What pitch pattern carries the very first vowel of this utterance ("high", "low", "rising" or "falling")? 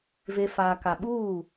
low